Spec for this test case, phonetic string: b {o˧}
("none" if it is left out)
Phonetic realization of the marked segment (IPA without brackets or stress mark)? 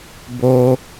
o˧